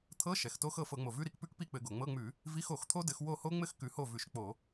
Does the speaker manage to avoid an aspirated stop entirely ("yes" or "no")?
no